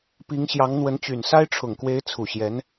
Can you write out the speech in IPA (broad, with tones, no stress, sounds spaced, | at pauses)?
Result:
p i˧˥ ŋ ɕ j ɑ˧˥ ŋ n̪ w ə˧˥ n t͡ɕ y˨˩ n s a˥ ɪ̯ ʈ͡ʂʰ ʊ˨˩ ŋ k w e˧˥ ɪ̯ t͡sʰ u˨˩ ɕ j ɛ˧˥ n